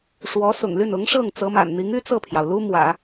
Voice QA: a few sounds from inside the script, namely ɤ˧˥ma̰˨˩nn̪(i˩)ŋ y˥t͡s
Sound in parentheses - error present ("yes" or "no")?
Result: yes